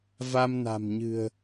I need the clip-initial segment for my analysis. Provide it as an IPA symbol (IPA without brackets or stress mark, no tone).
v